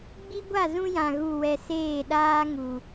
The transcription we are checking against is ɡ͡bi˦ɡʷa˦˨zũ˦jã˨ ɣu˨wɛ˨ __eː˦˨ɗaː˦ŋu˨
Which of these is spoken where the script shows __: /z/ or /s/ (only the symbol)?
s